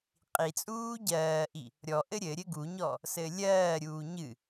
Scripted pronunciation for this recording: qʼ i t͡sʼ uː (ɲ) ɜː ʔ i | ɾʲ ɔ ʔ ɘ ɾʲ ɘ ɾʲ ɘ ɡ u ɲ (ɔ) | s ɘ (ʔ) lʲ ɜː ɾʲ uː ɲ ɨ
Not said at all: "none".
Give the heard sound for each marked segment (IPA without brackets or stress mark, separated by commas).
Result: ɟ, ɔ, none